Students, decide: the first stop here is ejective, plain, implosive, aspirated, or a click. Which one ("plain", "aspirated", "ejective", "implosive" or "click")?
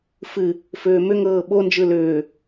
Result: implosive